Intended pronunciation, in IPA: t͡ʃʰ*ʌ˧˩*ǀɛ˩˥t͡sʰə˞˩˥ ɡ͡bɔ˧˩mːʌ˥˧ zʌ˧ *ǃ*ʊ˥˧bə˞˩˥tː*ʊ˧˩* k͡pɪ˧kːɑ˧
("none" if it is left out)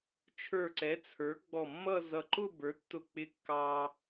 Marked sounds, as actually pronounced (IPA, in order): ə˞˧˩, ǃ, ʊ˧˩

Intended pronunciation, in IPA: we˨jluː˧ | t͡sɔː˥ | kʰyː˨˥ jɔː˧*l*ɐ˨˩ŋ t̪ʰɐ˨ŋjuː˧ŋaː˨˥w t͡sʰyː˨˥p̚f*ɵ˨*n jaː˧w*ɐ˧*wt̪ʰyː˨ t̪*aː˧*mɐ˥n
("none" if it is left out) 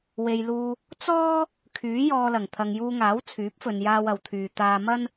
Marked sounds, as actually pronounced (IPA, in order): l, ɵ˨, ɐ˨, aː˧

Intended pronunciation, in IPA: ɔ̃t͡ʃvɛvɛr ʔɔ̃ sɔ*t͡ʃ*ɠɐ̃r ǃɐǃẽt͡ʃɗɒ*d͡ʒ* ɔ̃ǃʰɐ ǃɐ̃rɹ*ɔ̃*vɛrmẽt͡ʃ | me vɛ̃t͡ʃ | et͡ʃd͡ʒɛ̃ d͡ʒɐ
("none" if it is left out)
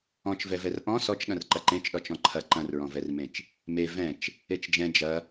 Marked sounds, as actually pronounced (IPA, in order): t͡ʃ, t͡ʃ, ɔ̃

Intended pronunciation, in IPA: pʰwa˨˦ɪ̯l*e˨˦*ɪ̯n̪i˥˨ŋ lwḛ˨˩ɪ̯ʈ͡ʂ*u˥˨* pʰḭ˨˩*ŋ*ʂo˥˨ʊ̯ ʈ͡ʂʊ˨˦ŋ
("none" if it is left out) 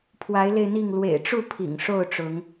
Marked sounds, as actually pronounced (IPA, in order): e˧, u˥˨, ŋ

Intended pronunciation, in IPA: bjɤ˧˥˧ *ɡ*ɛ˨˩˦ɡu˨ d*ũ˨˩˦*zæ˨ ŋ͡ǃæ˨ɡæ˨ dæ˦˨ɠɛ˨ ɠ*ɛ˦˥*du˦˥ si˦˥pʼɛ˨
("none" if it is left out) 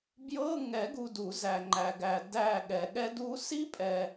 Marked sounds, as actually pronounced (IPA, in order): ŋ, u˨˩˦, ɛ˦˥

